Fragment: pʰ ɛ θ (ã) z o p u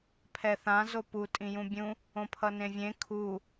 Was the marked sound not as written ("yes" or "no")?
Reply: no